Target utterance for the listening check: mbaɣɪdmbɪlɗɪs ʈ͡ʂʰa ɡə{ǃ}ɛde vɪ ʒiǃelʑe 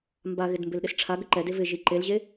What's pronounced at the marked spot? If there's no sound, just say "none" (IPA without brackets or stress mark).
ǃ